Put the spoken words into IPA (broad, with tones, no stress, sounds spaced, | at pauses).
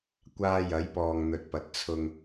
kʷ aː˧ j ɐ˨˧ j p ɔː˨ ŋ n̪ ɵ˨ t̚ p ɐ˨ t̚ t͡sʰ ʊ˨ ŋ